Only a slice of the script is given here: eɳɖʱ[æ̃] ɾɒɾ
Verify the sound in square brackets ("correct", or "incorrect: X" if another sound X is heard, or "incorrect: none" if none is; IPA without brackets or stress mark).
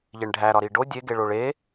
incorrect: æ